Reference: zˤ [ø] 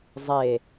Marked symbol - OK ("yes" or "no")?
no